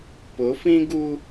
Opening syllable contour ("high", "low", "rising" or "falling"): rising